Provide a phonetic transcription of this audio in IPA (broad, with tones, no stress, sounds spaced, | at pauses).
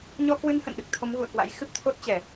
ɲ ɔ˧ k w ɨ˧ n h ə̰˧˨ n ɗ ɨ˨˩ k̚ t̪ʰ o˨˦ m ɣ ṵ˧˨ ə̯ k w a̰˧˥ j x ɨ˦˥ p̚ t̪ʰ o˦˥ t̚ t͡ɕ ɛ˧˩˨